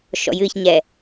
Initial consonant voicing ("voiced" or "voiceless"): voiceless